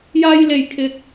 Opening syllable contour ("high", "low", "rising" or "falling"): high